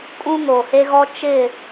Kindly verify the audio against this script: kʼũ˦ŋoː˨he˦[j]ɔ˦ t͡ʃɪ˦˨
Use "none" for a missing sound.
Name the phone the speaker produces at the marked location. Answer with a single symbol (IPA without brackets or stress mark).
ɣ